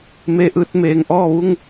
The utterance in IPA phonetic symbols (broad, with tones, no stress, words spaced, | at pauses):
me˧ʔɯː˧t̚ meː˩ŋʔɔː˥˨ʋu˥˨ŋ